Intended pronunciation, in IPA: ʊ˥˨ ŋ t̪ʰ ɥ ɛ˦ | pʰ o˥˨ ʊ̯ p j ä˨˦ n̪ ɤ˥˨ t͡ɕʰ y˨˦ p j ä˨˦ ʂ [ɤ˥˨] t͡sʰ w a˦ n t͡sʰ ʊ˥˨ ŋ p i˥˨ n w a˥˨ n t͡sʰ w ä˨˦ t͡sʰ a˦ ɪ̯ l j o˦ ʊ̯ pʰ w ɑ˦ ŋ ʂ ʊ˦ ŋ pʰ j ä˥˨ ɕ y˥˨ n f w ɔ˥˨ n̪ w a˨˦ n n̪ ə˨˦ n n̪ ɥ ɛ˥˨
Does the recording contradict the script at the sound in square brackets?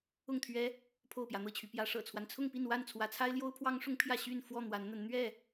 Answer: yes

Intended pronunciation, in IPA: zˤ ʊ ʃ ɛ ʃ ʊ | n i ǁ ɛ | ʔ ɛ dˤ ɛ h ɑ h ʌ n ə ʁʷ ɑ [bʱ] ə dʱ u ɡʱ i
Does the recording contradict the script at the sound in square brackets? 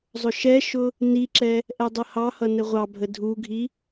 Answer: no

